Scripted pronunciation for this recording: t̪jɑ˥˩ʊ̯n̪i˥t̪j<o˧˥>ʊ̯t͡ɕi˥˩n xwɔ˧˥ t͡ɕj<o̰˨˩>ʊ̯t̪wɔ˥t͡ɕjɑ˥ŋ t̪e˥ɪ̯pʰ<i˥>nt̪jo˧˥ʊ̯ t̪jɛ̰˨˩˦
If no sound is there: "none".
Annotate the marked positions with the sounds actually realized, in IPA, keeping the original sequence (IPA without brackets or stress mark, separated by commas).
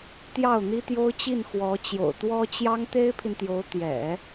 o˥, o̰˨˩, i˨